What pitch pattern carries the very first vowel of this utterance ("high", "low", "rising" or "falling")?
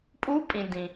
rising